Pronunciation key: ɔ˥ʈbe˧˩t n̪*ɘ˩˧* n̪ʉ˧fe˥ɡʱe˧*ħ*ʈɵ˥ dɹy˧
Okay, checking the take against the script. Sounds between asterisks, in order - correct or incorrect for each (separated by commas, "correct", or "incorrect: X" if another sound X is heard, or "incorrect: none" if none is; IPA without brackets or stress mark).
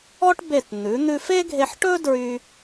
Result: incorrect: ʉ˩˧, correct